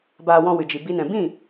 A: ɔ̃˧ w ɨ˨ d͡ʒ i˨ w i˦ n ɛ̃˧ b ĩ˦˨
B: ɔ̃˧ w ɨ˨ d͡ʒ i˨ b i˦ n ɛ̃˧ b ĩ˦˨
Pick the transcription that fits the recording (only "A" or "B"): B